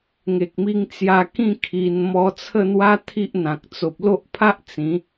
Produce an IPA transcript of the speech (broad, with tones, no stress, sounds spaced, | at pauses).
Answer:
ŋ e˨ k̚ m i˧ ŋ t͡s j a˧ k ĩ˥˧ kʰ i˧ n m ɔ˧ t͡sʰ ə˥˧ n̪ w a˦ t̪ʰ i˦ ʔ n̪ ã˨ k̚ t͡s o˨ p̚ l o˦ ʔ pʰ a˦ ʔ t͡s ĩ˨˦